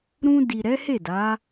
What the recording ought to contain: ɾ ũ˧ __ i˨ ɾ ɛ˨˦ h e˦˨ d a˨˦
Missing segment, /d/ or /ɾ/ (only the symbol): d